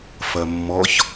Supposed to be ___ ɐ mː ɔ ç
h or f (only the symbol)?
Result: f